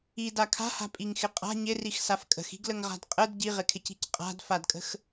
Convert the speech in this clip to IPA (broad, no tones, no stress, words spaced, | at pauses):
ida kʰa̤ha̤pʼiŋxɪ qʼa̤ ɲɪrixsaf kʼə̤xi̤ɡləŋʁa̤d qʼəd ɟiʁɪkʰɪci̤c qʼa̤dfadkʼə̤x